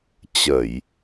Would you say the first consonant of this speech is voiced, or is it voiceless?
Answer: voiceless